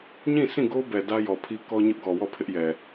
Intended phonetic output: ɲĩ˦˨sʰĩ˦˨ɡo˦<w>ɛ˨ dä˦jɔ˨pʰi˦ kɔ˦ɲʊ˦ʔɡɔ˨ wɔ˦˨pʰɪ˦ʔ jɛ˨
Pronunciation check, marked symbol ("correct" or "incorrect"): incorrect